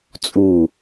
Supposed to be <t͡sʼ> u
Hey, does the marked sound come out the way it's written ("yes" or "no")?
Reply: yes